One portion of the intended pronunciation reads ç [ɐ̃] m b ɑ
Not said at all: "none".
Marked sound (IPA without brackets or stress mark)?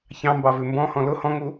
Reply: ɑ̃